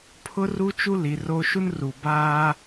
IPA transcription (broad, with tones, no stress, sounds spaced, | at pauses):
pʰ ʊ˦ r u˦ t͡ʃ u˦ l i˨ r oː˦ ʃ u˦ n r u˨ b aː˦